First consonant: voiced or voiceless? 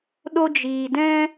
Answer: voiced